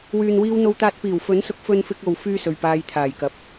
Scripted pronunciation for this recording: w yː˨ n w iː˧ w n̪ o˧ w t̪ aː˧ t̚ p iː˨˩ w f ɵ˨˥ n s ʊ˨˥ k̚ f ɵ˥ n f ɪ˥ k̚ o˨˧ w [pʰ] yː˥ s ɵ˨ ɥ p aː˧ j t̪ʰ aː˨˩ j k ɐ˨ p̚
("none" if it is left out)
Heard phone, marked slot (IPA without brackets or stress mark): f